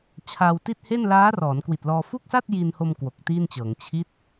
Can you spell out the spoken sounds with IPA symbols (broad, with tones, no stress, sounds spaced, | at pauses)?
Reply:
t͡ɕʰ a˧ w t i˥˩ t̚ h e˥˩ n l aː˦˥ r ɔː˩˦ n k w i˨˩ t̚ l ɔː˧ f u˥˩ k̚ s a˥˩ t̚ j i˧ n h o˧ m k w o˨˩ k̚ t i˥˩ n t͡ɕ ɤː˩˦ ŋ t͡ɕʰ i˦˥ t̚